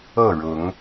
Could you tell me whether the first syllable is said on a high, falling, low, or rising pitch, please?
falling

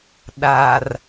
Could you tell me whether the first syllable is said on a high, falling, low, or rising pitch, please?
low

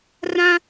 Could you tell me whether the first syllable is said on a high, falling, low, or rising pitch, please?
high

